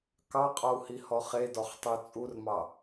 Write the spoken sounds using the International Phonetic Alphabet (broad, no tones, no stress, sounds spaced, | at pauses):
k ɑ qʼ ɔ u̯ h i h ɔ χ e d ɔ χ tˤ u t͡sʼ u r m ɑ